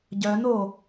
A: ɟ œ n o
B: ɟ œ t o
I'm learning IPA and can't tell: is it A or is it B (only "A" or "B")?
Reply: A